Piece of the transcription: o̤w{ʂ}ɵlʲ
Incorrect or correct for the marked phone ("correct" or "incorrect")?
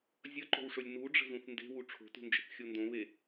correct